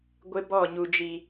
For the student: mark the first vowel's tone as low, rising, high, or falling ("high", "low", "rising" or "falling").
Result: high